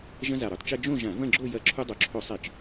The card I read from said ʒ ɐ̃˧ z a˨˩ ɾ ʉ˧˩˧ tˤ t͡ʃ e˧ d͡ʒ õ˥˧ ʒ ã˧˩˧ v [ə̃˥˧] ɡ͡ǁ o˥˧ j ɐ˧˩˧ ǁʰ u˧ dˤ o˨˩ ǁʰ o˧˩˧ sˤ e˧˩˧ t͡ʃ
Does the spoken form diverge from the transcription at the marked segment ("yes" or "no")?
yes